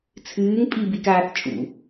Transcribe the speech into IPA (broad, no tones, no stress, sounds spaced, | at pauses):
t͡sʰ ɨː ŋ pʼ i b i k aː θ t͡ʃʼ ṵ